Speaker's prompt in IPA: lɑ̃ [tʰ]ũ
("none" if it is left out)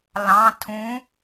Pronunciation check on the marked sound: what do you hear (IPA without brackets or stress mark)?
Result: tʰ